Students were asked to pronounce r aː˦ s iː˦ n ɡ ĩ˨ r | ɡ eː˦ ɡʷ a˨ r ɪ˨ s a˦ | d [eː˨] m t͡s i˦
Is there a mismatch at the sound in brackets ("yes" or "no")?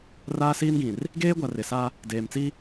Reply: no